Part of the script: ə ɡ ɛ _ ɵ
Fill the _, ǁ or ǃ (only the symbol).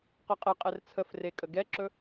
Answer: ǁ